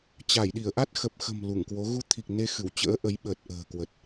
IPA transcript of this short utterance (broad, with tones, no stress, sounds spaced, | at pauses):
t͡ɕ a˧˩ j ɗ i˧˩ ə̯ ʔ a˦˥ t̚ x ə˨˩ p̚ x ə̤˨˩ m l u˧˩ ŋ k w o˨˦ ɣ u˨˦ t̪ʰ i˨˩ k̚ n e˧ x ɨ˧˩ w t͡ɕ ə̰ː˧˥ ʔ ə˨˦ j ɓ əː˨˩ t̚ ʔ ə̤ː˨˩ k w ə˨˩ t̚